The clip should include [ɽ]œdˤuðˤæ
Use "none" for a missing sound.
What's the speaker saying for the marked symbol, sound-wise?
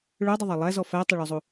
ɭ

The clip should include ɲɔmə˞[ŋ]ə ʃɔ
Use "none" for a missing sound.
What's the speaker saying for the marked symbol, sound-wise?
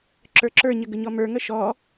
ŋ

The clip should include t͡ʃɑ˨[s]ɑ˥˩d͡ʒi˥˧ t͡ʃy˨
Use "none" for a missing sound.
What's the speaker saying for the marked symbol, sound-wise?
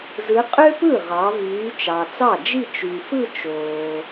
t͡s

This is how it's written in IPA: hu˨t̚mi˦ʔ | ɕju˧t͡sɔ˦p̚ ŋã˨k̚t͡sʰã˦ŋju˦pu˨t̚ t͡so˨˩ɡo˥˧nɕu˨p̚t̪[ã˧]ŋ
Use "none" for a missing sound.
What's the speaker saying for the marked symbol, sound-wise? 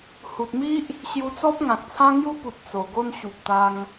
a˧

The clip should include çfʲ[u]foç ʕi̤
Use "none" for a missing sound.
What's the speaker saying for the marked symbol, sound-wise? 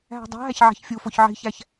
u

